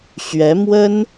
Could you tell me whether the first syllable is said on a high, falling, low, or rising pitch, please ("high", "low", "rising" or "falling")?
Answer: rising